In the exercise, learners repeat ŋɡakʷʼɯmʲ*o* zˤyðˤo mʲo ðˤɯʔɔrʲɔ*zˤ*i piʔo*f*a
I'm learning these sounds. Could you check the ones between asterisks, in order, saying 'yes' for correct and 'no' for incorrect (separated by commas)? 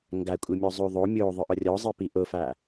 no, yes, yes